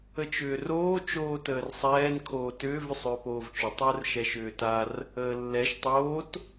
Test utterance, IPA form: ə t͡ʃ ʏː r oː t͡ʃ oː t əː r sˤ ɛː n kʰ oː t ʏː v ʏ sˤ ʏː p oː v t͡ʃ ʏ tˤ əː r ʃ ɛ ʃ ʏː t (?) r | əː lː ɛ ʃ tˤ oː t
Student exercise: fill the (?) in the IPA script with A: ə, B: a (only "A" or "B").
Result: B